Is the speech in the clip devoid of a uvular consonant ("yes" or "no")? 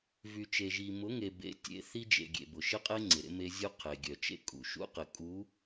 no